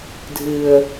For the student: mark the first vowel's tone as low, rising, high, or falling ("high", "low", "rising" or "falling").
low